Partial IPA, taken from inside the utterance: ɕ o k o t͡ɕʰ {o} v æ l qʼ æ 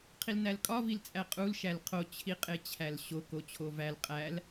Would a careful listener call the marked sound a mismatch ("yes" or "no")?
no